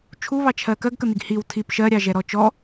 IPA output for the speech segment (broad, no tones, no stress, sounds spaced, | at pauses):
t͡ʃʰ u β ɑ t͡ʃʰ ɜ k ɜ ɡ k ə n̪ i ɡ h i w tʰ i p ʃ ɜ ɾʲ ɑ ʒ ɛ ɾ ɔ t͡ʃ ɔ